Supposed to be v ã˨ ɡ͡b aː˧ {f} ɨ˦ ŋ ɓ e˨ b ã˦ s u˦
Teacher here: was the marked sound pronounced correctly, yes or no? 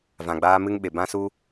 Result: no